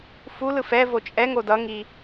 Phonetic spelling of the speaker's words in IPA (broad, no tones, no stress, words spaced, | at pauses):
fu lɯfɛ vot͡ʃʼɛ ŋodʌŋi